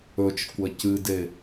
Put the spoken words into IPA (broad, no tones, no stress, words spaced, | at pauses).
ɵt͡ʃkʷɐ cɨde